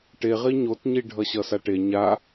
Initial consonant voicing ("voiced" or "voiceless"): voiceless